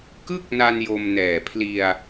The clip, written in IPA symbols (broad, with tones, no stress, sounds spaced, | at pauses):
k ɯ˥˩ k̚ n a˧ n j o˧ m n ɛː˨˩ pʰ l i˧ a̯